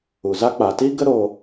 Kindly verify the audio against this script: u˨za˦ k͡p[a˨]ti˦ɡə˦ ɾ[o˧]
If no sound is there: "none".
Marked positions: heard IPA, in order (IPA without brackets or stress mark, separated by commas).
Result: a˨, o˧